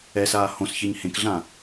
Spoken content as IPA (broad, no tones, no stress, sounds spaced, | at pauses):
ɛ s aː h õ s ç e ɲ h ẽ k ɮ ã